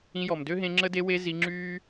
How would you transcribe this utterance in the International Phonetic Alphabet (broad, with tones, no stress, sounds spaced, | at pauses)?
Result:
ĩ˧ j ɔ˨ m d ø˦ ɦ ẽ˧ ŋ͡ǁ ə˦ d e˧ w e˧ z i˧ ŋ͡ǁ yː˦